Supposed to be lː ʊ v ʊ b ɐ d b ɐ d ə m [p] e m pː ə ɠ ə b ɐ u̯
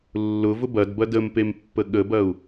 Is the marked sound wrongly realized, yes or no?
no